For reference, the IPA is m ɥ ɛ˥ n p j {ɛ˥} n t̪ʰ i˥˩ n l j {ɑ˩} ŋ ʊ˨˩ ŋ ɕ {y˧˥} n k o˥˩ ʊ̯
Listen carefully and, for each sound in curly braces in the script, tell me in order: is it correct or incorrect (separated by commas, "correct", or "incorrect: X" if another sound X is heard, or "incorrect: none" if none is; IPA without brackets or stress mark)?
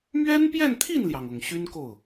incorrect: ɛ˥˧, correct, incorrect: y˥